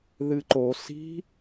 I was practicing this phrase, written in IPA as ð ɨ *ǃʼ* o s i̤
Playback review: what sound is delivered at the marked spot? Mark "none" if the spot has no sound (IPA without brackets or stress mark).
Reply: ǃ